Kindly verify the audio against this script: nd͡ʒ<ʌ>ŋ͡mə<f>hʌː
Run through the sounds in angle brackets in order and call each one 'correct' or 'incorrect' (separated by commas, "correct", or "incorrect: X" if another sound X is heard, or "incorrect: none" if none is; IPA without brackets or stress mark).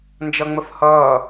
correct, correct